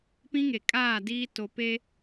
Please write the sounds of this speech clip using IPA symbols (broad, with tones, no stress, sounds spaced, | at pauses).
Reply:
p ĩ˦ ŋ e˨ kʼ aː˦˨ d iː˦ t o˨ p e˦